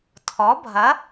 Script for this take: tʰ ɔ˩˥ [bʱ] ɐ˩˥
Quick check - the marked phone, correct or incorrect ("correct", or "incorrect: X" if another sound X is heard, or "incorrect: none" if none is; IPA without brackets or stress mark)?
correct